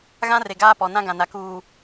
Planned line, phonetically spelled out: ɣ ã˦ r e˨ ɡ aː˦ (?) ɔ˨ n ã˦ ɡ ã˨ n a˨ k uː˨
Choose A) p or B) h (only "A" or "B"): A